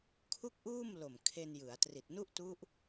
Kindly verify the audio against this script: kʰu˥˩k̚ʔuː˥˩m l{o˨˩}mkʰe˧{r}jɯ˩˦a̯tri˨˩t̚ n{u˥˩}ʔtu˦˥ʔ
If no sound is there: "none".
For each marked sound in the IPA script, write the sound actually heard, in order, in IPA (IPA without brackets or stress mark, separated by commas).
o˨˩, n, u˥˩